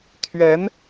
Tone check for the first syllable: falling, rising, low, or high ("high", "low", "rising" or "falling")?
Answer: rising